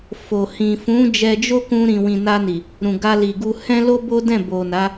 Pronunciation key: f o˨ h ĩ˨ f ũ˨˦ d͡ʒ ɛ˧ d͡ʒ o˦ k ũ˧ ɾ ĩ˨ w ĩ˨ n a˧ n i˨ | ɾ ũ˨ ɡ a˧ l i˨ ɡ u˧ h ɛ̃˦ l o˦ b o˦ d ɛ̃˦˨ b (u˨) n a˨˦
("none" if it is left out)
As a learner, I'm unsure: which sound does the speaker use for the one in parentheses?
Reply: o˨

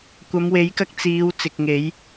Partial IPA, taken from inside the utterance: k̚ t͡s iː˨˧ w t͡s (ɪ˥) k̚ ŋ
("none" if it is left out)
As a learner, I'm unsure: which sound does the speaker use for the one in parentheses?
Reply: ɪ˨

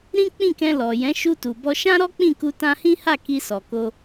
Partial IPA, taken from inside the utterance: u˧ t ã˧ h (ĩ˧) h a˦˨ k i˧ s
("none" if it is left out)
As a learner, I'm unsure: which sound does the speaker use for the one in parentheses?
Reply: ĩ˦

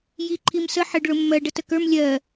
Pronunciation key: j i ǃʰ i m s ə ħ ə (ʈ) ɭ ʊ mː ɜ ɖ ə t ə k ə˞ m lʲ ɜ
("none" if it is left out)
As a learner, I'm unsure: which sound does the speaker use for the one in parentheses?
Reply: ɖ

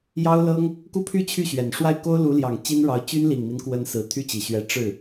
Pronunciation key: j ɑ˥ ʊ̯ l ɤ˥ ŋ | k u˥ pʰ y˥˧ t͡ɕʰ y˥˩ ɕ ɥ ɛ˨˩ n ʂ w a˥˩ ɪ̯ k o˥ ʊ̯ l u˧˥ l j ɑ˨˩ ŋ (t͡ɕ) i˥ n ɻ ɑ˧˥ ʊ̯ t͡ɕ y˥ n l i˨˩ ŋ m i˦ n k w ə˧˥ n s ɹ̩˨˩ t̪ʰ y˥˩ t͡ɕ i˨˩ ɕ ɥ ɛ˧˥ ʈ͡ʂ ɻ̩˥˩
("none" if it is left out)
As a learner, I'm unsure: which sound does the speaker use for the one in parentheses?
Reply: t͡ɕ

